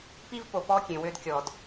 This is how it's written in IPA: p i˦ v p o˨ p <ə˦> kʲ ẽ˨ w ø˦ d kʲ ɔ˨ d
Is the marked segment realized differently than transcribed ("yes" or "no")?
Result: yes